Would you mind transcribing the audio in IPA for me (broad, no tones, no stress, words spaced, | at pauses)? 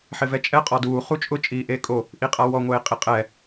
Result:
ħɪvɛt͡ʃʼɛ qʼɔduː χut͡ʃʼʊ t͡ʃʼiːʔeːkʼo | ʔiqʼawɔ ŋʷeːqʼiqʼɛ